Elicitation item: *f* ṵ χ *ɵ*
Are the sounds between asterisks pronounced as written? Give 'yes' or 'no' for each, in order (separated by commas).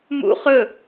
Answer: no, yes